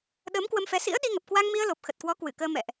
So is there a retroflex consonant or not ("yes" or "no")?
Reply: no